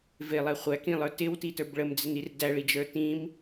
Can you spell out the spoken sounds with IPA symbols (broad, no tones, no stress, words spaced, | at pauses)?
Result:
vɪlˠɛ χʷækĩlˠə˞ tɪwtitə˞b ɭəmd͡zɪnir dæɭid͡ʒə˞ tĩm